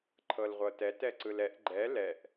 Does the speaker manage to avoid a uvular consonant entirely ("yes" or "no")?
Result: no